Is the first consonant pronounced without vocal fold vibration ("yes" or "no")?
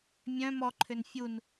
no